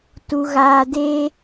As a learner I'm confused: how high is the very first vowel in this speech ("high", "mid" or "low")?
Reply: high